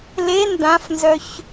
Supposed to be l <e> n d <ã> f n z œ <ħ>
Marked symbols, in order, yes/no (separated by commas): yes, yes, no